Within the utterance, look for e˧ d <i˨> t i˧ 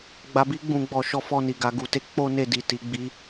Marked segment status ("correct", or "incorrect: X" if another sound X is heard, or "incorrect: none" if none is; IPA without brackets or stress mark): correct